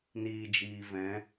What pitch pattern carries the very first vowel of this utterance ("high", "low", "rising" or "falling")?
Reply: low